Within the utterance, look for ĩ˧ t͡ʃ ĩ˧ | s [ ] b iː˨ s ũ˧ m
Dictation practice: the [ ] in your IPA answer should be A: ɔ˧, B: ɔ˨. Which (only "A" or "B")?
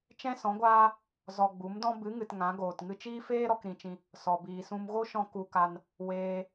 B